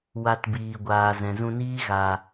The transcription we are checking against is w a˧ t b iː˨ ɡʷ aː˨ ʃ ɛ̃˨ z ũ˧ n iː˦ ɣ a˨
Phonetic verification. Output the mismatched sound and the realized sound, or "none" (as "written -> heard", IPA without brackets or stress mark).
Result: ʃ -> z